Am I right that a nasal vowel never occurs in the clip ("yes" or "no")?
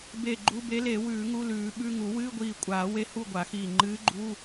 yes